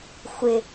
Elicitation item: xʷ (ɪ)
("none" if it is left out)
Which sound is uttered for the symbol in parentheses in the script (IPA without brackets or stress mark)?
ɪ